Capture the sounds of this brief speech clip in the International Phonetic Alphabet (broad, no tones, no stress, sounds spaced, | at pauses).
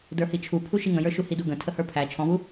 d ə˞ h i t͡ʃʰ u pʰ u ʃ i ŋ ə̃ j ə˞ ʃ u h i d u ɡ ə̃ tʰ ə h ə˞ pʰ æ t͡ʃʰ ɔ̃ β u